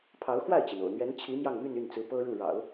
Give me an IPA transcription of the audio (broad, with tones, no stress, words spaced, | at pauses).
pʰɑ˧˥ʊ̯xwa˥˩ɪ̯t͡ɕi˩n o̰˨˩ʊ̯n̪ɥɛ˧˥nt͡ɕʰi˧˥ mjɑ˥˧ŋmy˥˧ny˥˩nt͡sɹ̩˧˥ pɤ˥ɻu˥˩ ɻɑ̰˨˩˦ʊ̯